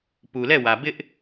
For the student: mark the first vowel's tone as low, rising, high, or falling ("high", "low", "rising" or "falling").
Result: low